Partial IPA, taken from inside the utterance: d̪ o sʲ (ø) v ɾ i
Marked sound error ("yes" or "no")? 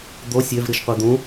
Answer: no